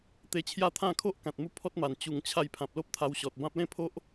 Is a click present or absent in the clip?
absent